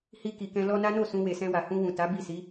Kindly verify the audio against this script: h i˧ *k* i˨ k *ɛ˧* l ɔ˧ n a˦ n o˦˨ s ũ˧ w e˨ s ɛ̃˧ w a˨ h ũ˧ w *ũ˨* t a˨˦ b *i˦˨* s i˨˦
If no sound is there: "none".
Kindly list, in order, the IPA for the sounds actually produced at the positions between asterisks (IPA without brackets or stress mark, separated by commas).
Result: k, ɛ̃˧, ũ˨, i˦˨